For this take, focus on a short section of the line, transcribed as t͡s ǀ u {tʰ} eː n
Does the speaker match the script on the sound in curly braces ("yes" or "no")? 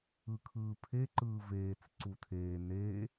yes